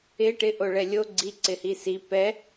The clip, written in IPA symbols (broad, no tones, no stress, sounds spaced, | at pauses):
ɪ ʈ ɪ ʔ o ɭ ɛ lʲ o ɡ͡ǀ i ǀ ɪ h i s i p ɛ